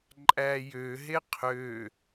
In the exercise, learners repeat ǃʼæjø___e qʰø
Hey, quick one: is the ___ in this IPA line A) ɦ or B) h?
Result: A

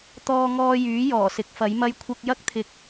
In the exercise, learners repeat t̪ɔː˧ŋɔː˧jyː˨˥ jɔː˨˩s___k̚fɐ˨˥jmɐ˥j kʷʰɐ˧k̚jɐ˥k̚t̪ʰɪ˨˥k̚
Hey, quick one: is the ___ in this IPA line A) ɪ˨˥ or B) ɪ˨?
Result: A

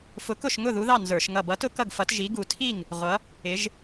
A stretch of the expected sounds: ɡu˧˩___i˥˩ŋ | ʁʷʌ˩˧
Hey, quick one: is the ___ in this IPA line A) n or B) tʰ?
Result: B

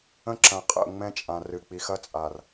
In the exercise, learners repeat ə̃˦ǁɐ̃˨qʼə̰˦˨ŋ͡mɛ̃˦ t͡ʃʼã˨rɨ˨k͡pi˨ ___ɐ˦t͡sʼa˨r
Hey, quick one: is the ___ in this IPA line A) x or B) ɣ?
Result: A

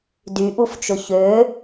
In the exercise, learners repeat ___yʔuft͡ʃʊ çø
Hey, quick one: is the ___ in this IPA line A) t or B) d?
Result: B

